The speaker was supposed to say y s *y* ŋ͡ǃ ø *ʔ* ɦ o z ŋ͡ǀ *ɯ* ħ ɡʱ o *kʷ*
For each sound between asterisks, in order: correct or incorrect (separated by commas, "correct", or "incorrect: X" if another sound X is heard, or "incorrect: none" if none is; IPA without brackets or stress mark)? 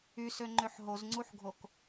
incorrect: ø, incorrect: ħ, incorrect: u, incorrect: k